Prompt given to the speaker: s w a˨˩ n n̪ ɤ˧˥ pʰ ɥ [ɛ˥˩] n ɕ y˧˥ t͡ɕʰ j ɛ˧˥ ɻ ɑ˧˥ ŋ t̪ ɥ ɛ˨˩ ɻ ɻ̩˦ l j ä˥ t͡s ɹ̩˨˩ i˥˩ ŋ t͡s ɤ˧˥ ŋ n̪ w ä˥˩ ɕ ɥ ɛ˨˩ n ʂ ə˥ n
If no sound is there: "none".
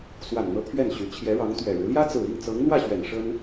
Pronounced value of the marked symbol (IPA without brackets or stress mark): ɛ˥˩